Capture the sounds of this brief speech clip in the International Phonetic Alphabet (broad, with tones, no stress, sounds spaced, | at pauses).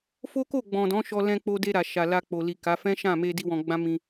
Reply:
f o˦ k o˦˨ ɡ͡b ɔ̃˨ d ɔ̃˨˦ ʃ ɔ˧ l ɛ̃˧ k͡p o˧ d e˧ ɾ a˨ ʃ a˨ l a˧ k͡p o˨ l i˨ k a˨˦ f ɛ̃˦ ʃ ã˦˨ m e˧ d i˦ w ɔ̃˧ ɡ͡b ã˦ m ĩ˧